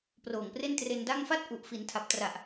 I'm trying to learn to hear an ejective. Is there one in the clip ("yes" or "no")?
no